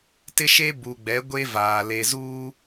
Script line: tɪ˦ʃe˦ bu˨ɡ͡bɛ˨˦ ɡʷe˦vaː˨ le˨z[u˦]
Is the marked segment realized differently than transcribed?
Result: yes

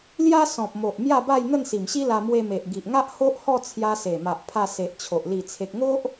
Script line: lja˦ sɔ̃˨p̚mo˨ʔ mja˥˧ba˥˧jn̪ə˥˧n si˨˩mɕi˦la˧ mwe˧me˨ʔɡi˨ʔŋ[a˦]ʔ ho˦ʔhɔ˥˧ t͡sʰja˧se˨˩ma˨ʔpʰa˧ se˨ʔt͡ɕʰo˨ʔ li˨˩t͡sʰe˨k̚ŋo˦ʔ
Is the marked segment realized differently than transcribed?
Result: no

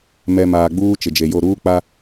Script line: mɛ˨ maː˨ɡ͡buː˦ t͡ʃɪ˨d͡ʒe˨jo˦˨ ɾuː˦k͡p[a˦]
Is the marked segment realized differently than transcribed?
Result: no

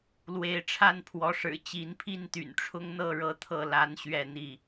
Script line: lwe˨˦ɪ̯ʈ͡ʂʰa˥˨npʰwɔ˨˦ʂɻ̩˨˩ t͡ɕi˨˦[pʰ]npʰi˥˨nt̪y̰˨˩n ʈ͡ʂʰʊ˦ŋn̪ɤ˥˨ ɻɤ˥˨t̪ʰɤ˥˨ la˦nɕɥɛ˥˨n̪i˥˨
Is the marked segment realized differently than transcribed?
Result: yes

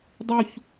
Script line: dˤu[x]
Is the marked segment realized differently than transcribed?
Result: yes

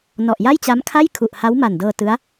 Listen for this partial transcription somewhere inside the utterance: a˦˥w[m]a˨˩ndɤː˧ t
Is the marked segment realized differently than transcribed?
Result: no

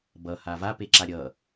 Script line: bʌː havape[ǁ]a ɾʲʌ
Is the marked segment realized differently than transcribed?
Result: no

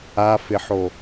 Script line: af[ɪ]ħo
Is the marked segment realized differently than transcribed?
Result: no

